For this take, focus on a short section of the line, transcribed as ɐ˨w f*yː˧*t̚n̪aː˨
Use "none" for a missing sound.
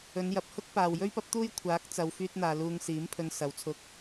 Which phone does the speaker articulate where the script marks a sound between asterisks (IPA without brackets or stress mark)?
yː˧